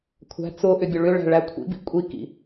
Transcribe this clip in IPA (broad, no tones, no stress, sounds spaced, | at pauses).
kʷʰ æ̤ t͡s ʊ ʔ ʏ bʲ ʊ ɭ ʏ ɭ æ̤ ɭ æ kʷʰ ḭ b ḭ kʷʼ i k ḭ